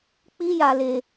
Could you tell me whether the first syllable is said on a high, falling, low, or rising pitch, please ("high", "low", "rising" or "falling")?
high